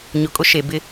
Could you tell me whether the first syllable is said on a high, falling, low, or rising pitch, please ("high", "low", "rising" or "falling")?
low